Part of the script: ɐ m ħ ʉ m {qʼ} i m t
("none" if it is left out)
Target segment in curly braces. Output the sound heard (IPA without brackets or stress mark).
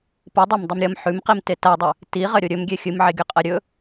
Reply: q